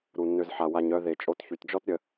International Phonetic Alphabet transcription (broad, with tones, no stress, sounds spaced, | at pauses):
ɾ u˩ nː ø˨ z ħ a˩ w a˨ ɲ œ˨ ð e˩ t͡ʃʼ o˨ t ç y˩ t d͡ʒ ɔ˥ t ɾʲ ə˨